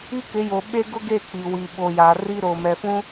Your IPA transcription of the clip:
i˦ kɪ˨˦jo˨ ɓe˦ɡʊ˦ɡe˦˨ k͡pi˨wi˨ ɓo˨ja˨ri˦ ɾo˨mɛ˨fũ˦

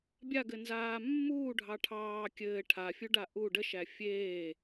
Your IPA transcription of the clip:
bʲaɡɘnzaː mːuːɖʱɑ ʈʰɑː kʲɘː ʈʰafʲuɖa ʔu ɖəʃæ fʲeː

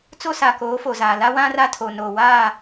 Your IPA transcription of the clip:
t͡so˦sa˨koː˨˦ fo˨zaː˨ la˦wã˦ ra˦tʰo˨ noː˨waː˦˨

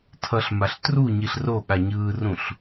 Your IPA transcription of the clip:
tʰʌɬmaɬ truɲiɬ ro ɠaɲɯːrũɬ

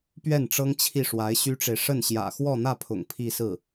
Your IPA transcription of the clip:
pɥɛ˥˩nʈ͡ʂɤ˥ŋ t͡ɕʰi˥˩ʂwa˧˥ɪ̯ɕy˥ʈ͡ʂe˨ɪ̯ ʂə˥˩nɕjä̰˨˩ xwɔ˥˧n̪ä˥˩pʰʊ̰˨˩ŋ pʰi˥˧sɹ̩˥˩

